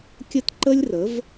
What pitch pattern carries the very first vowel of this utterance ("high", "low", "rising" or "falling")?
high